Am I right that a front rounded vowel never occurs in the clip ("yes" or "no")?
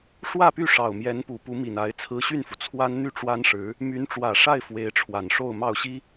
no